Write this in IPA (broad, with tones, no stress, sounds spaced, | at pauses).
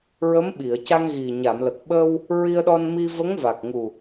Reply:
ɹ ə˧˥ m ɓ i˨˩˨ ə̯ c a˧ ŋ ɣ i˨˩ ɲ a˨˩˨ m l ə˨˩ k̚ ɓ ə˧ w | ɹ i˧ ə̯ ɗ ɔ˧ n m i˧ v ə˧˥ ŋ v a˨˩ k̚ ŋ u˨˩